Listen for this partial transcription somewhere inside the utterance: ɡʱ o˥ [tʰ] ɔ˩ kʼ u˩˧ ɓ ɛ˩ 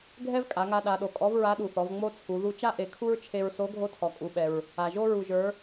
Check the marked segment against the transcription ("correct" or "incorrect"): correct